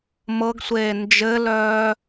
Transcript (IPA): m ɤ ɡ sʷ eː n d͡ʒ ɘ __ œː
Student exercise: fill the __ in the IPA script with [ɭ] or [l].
l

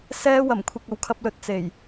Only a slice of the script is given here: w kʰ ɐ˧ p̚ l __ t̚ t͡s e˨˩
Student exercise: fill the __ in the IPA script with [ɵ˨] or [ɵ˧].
ɵ˧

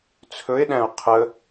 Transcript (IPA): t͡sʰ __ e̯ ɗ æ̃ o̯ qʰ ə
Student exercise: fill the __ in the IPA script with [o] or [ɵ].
ɵ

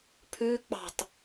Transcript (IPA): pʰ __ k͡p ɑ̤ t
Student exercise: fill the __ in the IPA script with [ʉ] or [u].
ʉ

